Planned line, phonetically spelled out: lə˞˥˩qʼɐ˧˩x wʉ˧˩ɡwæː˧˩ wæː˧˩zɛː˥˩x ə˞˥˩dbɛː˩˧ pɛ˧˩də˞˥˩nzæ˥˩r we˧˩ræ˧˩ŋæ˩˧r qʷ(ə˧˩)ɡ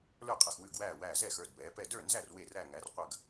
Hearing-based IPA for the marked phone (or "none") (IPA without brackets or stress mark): ɐ˧˩